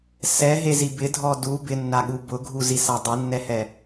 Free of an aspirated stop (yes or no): yes